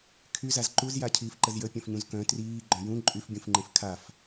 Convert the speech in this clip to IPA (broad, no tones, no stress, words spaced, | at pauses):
kʰyzaz ǃuzjacʰiːfǃəz jəpʲœ̃fɲũz kœ̃ triːɡ͡ǃœ̃ jũ ǃʼyfbʲũfŋ͡ǃẽf kʰaf